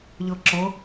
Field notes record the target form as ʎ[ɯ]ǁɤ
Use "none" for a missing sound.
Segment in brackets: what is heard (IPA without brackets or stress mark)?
ɤ